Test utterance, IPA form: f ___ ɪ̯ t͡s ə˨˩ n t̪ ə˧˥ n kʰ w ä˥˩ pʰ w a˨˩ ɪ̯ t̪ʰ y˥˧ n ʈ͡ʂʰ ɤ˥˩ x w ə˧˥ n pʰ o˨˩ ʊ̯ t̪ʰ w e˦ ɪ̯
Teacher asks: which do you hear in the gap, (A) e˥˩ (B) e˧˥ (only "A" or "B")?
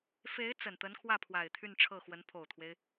B